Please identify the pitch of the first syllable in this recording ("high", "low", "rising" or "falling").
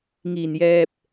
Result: low